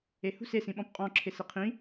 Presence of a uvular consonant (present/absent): present